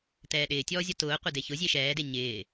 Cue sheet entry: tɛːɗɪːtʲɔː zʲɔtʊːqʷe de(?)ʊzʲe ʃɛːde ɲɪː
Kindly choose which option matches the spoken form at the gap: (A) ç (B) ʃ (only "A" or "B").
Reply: A